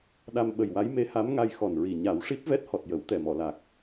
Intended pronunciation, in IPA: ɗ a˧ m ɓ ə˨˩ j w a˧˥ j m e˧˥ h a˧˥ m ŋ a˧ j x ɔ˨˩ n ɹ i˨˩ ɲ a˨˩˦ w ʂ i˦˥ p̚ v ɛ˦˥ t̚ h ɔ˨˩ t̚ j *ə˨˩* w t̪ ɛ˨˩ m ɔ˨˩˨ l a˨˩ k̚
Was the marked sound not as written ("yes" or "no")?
yes